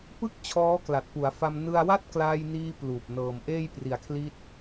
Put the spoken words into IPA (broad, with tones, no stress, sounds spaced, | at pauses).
p ɯ˥˩ k̚ t͡ɕʰ ɔː˦˥ k l a˨˩ t̚ p u˩˦ a̯ f a˧ m n ɯ˧ a̯ w a˥˩ t̚ k l aː˧ j n iː˧ p l uː˨˩ p̚ n ɤː˨˩ m ʔ eː˥˩ j p r i˨˩ a̯ kʰ l i˦˥ t̚